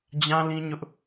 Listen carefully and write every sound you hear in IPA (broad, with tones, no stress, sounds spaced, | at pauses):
d͡ʑ ã˦ l ĩ˦ ɲ ʊ˦ ʔ